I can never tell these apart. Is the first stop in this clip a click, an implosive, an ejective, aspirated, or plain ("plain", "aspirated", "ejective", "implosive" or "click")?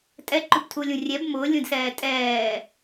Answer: ejective